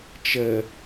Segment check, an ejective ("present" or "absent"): absent